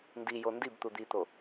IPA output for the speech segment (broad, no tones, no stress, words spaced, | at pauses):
ndijo ndib t̪ud̪it̪o